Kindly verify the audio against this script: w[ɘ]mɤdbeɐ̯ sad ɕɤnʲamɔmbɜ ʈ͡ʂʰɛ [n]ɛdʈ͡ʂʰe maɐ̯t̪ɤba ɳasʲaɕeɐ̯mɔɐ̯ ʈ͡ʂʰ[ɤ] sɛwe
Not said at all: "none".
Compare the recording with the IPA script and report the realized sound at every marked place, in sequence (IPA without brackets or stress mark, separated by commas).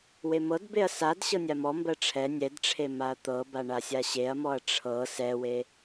e, nʲ, ɤ